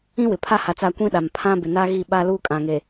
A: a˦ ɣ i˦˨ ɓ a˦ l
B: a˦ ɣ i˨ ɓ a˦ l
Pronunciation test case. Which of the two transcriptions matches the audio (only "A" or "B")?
A